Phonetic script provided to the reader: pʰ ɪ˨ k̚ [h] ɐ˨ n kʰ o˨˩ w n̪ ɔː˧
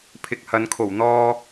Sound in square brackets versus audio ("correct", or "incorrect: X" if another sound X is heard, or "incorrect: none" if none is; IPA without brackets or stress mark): correct